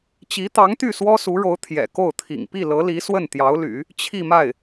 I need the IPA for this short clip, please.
t͡ɕi˧˥t̪ɑ˧˥ŋt̪y˥˩ swɔ˥su˧˥ɻo˧˥ʊ̯ t̪ʰjɛ̰˨˩ko˥˩ʊ̯t̪ʰḭ˨˩ŋ pi˥˩lɤ˧˥li˧˥ swə˥˩nt̪jɑ˧˥ʊ̯ly̰˨˩˦ | t͡ɕʰi˥˧ma˥˩ɪ̯

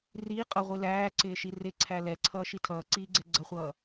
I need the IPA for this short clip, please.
riː qʼʌʁʷi læːǀɪːʃi rɪǀʰæ lɛǀʰʌːʃi tʰʌːǀiːɡ͡ǀɛ ɡ͡ǀʌχʷʌː

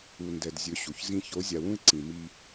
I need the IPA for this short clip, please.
u˨ndɛ˨dzʲɵ˨˦ ɕu˨çzĩ˦ ço˨˦zʲa˨wũ˦ɪ̯ ǀĩ˨ mi˦

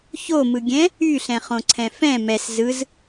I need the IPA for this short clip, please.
çomɯɡʲɛ̃ | yɬɛ̃χõǀʰɛ̃ fɛ̃ mɛs zɯz

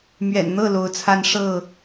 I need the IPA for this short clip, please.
mɥɛ̰˨˩nn̪ɤ˥˨ lo˨˦ʊ̯t͡sʰa˦n ʂɤ˥˨

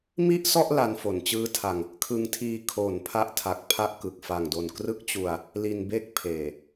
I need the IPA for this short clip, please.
mi˥˩ʔsɔ˥˩ʔ la˧nfo˩˦nt͡ɕɯː˦˥tʰa˧ŋ | kʰɯ˧ŋtʰiː˧ kʰo˩˦n pʰa˦˥ʔtʰa˨˩k̚ pʰa˥˩ʔkɯ˨˩k̚ fa˨˩ŋdo˨˩n krɯ˦˥k̚t͡ɕu˧a̯ | li˧nbe˥˩k̚ pʰeː˨˩

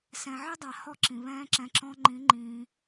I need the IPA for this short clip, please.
sɛ̃˨ʕɘ˦dˤa˨ hɔ˦ǁĩ˨βɛ̃ː˦ǁɛ̃˧ ǁɔ̃˧ŋ͡ǃĩ˨˦ ŋ͡ǃĩː˧

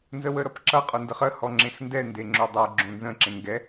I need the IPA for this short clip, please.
nzəwəɾʌpǁʌ qʼondəχə hɔŋ͡ǁẽxndɛ ndeŋ͡ǁodˤə˞ ɡ͡ǁõnzə̃ ǁẽŋɡɛ

